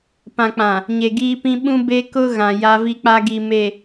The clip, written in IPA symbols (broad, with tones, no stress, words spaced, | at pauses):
pã˨k͡pã˨ | ɲe˨ɡiː˦pĩ˦ ɓũ˦ be˦kʊ˦ɣã˨ ja˦vi˦k͡pa˦ ɡi˨me˨